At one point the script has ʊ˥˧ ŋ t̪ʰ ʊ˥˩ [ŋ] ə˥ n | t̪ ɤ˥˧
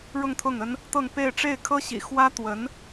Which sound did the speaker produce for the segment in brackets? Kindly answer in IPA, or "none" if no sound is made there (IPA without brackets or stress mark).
ŋ